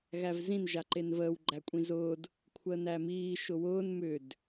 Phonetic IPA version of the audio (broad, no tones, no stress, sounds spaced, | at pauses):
ɣ æ v z ĩ n ʒ a ǃ e n v əː w ɡ͡ǃ æ kʷʼ ĩ z ʊː d | kʷʰ əː n æ m iː ʃ ʊ w ʊː n m ʏ d